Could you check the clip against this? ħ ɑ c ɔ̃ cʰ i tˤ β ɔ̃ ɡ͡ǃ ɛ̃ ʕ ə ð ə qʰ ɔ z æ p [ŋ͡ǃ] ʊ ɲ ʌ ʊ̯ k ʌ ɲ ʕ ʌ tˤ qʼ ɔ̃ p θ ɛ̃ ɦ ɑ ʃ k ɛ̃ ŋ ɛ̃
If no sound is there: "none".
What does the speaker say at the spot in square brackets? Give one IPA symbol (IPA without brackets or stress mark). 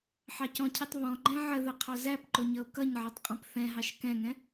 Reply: ǃ